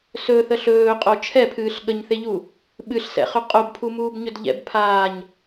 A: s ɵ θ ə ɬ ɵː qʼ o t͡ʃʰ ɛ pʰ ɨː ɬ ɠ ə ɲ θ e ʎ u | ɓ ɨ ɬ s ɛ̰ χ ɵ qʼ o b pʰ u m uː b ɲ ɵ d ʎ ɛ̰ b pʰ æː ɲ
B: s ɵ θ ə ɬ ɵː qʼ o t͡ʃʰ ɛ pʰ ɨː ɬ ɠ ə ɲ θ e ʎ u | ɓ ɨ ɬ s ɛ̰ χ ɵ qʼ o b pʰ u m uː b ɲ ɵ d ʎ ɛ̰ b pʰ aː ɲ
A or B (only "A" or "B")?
B